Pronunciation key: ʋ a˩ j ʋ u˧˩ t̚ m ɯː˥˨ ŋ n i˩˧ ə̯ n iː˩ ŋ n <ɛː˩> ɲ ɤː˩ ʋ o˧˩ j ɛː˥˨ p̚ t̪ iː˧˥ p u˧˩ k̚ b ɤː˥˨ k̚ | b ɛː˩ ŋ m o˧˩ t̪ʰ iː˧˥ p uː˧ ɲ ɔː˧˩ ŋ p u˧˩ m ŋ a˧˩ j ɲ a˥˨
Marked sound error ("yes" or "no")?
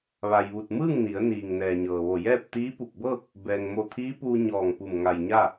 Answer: no